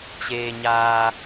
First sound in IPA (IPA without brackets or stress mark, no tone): t͡ɕ